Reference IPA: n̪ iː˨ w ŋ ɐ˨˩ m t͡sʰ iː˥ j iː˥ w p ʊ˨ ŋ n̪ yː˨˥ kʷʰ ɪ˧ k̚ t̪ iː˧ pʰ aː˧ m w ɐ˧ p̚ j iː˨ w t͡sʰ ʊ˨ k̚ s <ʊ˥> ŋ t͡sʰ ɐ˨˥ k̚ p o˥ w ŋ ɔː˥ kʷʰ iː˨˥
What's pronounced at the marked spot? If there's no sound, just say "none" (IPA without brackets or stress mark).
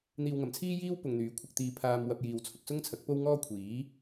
ʊ˥